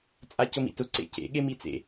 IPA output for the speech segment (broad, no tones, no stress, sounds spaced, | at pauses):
t͡sʼ a c ʊ m ḭ t ʊ ǀ ḛ c ḛ ɠ e m i t͡s ḛ